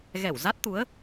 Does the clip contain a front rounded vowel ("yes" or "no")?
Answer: no